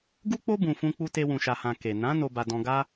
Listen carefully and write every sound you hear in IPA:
ɡ u˦ k͡p o˦ b ũ˧ f ũ˦ k͡p u˦ t e˧ w ũ˨ ʃ a˨ h ã˨ k e˨ n ã˨˦ n o˧ b a˧ d ɔ̃˧ ɡ a˦

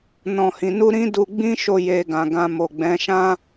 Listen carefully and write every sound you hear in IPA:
n ɔ̃˨ h ĩ˨ n u˧ ɾ ĩ˦ d u˧ ɡ͡b ĩ˦ ʃ o˧ j e˧ ɡ ã˨ ɡ ã˧ m o˨ ɡ͡b ɛ̃˨˦ ʃ ã˦

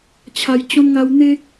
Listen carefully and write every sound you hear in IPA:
t͡ɕʰ a˧ j t͡ɕ ɔ̃˦ n ŋ a˦ w n̪ e˦

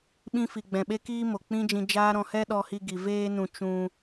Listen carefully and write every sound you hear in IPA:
ɓ ĩ˧ f i˨ ɡ͡b ɛ̃˨ ɓ e˦ k iː˦ m o˨ k͡p ĩ˦ d͡ʒ ĩ˧ d͡ʒ aː˦ ɾ ɔ̃˧ h ɛ˦ ɗ ɔ˧ h i˧ ɡ i˨ v eː˦ n ũ˧ t͡ʃ ũ˧

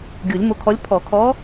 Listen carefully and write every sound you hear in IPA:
ɡʲ u˨˩˦ lʲ m o˧˥ kʰ ɔ˧˥ lʲ pʰ ɔ˨˩˦ kʰ ɔ˧˥

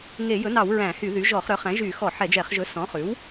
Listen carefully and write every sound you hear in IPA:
ŋ e˧˩˧ j ɵ˩˥ n ɑ˧˩˧ w ɹ æ̃˧˩˧ h y˧˩˧ ð y˩˥ ʒ ɔ˧˩˧ χ ɾ œ˩˥ χ æ̃˩˥ ʒ y˧˩˧ x ɔ˧˩˧ ħ ɛ˧˩˧ d͡ʒ ɛ˧˩˧ χ ʒ ɵ˩˥ s ɔ̃˩˥ χ ʉ˩˥ w

